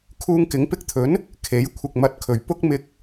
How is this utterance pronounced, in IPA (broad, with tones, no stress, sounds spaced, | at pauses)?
kʰ uː˧ ŋ k ɪ˨˥ ŋ p ɪ˧ k̚ t̪ʰ ɵ˨˥ n | kʰ e˨˥ j kʷʰ ɪ˨ k̚ m ɐ˨ t̚ kʰ ɵ˨˩ ɥ p ʊ˥ k̚ m ɪ˧ k̚